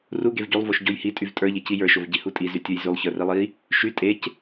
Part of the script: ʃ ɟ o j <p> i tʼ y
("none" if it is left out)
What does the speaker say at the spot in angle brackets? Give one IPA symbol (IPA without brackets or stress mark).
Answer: h